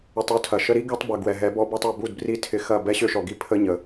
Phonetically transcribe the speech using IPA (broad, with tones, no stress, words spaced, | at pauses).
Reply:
ʏ˧tˤu˦tʰɐ˨ ʃə˧ɾi˦ ɡø˦tˤ bɐ˨ɡwɛ˨ɦɛ˨˦bɔ˧ bɔ˦tˤø˧ bu˦˨dbri˦˨ tʰɪ˧xɐ˦˨ bɛ˦ ɕø˦ʃɔ˨ɡi˦ pʰə˦ ɲə˨